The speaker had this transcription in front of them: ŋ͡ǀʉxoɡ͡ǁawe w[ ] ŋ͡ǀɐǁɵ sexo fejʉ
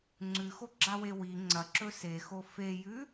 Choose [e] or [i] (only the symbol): i